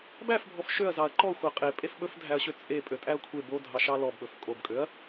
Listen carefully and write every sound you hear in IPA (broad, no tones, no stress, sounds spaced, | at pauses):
b æ f bʱ ɔ f ʃ ø ɐ̯ z ɑ ɐ̯ ǃ ɔ xʷ æ qʼ e pʼ e f ɓ ɵ f dʱ æ ɐ̯ ɕ ø t͡sʼ e pʼ ø tʼ æ ɐ̯ kʷʰ e b o dʱ ɑ ʃ ɑ l ɔ b ɓ ɵ f kʼ o b kʼ ø ɐ̯